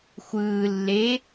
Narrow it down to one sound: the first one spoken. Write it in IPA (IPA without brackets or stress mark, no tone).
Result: xʷ